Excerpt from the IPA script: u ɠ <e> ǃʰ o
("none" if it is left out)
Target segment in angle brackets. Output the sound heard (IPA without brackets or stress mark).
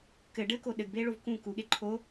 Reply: e